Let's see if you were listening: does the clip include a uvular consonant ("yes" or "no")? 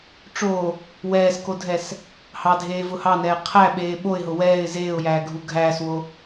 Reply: yes